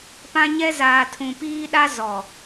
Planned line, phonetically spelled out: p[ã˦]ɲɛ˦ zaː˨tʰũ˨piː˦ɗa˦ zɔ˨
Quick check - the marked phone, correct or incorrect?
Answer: correct